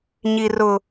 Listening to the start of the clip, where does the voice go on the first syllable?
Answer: high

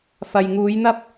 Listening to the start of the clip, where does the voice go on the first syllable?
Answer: low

